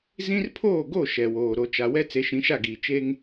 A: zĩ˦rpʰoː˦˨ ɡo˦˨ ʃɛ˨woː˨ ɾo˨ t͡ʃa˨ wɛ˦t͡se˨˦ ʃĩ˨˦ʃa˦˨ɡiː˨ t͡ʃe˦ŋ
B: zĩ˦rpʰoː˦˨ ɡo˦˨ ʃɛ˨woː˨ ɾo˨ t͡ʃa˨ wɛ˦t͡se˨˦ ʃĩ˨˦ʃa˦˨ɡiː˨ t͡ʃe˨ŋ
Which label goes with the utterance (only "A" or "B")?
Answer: A